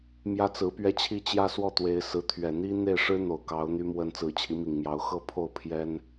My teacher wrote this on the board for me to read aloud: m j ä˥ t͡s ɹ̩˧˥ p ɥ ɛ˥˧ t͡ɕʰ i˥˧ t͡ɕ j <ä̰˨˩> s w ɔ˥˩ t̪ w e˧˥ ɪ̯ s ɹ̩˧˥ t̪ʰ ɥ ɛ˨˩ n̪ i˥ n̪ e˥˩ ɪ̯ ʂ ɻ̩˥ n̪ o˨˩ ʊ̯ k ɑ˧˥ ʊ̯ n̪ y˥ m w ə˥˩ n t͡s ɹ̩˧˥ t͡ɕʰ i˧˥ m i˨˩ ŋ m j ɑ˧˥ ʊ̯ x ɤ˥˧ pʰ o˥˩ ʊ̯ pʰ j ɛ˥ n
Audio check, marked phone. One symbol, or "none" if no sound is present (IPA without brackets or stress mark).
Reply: ä˥˧